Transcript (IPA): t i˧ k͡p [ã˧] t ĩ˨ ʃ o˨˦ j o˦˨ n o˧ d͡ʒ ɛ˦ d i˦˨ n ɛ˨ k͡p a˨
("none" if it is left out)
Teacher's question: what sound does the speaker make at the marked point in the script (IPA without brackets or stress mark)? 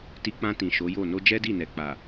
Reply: ã˧